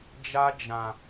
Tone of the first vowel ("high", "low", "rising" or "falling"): high